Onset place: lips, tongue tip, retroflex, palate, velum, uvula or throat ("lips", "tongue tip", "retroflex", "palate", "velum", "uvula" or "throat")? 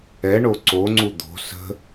retroflex